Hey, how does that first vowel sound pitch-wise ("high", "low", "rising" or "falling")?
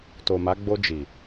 low